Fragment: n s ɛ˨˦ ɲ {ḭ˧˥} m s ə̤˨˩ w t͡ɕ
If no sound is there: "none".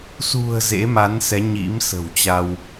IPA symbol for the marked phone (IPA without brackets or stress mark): ḭ˧˥